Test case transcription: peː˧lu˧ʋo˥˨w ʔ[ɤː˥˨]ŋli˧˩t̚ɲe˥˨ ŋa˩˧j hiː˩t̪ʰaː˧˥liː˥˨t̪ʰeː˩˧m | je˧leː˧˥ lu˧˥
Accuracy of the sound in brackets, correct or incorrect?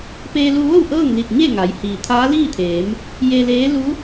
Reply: correct